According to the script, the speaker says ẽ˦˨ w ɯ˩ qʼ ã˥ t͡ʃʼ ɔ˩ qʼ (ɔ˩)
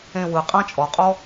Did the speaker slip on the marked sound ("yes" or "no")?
yes